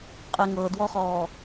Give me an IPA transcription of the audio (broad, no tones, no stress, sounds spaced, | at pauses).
qʼ e ŋ ɤ d w ɔ χ ɔː